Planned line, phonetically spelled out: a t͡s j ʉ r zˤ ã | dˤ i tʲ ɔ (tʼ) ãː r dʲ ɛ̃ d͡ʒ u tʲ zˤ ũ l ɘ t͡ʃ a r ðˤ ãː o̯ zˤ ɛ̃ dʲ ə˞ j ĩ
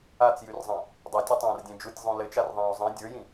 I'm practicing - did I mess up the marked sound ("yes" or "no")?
yes